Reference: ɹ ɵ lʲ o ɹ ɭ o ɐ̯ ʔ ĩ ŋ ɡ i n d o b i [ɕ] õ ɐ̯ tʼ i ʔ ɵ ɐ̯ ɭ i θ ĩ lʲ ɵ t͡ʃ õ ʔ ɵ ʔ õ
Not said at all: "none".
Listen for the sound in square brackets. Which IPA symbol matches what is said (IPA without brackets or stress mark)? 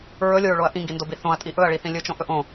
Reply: θ